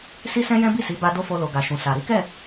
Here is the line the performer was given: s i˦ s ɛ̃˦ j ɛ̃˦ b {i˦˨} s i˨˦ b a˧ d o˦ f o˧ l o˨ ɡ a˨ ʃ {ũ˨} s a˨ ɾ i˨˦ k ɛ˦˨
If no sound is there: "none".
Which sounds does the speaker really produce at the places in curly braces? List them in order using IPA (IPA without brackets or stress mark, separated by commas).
i˦˨, ũ˨